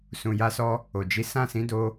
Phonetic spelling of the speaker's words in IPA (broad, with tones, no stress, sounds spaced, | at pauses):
s ũ˨ j a˧ s ɔ˧ | o˨ d͡ʒ i˨˦ s ã˦˨ s ĩ˨˦ d o˧